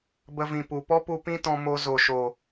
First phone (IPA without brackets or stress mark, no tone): b